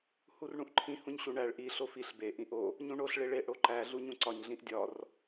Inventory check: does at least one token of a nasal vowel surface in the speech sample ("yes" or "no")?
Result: yes